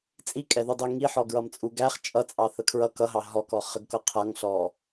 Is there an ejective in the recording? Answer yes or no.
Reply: yes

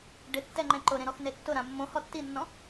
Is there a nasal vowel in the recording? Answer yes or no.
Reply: yes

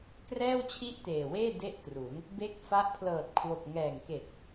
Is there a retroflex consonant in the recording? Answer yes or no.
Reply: no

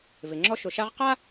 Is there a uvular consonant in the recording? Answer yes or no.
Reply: yes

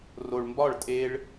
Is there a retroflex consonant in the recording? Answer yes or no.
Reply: yes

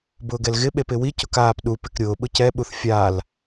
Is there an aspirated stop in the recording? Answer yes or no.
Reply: no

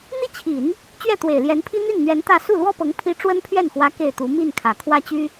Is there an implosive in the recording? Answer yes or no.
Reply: no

